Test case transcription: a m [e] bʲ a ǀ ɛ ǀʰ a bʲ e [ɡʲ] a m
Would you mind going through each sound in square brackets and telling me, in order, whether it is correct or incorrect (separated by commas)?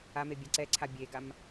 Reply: correct, incorrect